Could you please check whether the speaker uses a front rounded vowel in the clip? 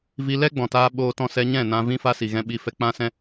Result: no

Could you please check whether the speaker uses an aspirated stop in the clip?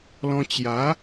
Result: no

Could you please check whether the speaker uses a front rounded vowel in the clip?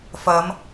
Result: no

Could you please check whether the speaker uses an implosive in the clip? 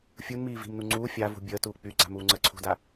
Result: no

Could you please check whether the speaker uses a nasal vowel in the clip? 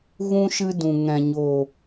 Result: yes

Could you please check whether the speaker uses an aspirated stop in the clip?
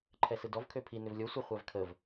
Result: yes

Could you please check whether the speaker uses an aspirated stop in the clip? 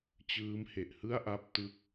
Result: no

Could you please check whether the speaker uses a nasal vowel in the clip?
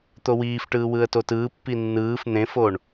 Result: yes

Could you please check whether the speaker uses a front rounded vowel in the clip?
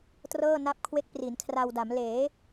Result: no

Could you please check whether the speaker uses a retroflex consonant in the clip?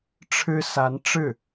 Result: yes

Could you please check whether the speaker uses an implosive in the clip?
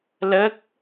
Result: no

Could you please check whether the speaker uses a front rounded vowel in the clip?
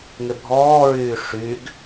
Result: yes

